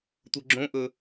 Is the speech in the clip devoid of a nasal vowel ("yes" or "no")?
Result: no